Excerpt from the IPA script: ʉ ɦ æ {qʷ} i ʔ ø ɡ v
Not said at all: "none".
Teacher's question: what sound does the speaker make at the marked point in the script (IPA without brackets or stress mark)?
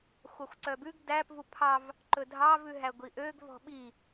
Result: ɡʷ